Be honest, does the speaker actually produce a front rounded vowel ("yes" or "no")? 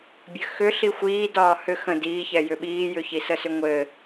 yes